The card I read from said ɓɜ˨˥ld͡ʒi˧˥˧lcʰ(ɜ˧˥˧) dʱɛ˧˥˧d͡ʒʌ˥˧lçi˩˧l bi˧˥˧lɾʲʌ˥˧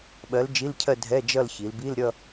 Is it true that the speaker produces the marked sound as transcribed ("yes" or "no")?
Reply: no